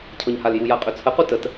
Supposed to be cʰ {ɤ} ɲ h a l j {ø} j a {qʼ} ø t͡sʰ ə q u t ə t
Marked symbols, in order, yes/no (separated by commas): yes, no, yes